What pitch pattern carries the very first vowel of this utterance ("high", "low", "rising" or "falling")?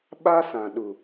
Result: high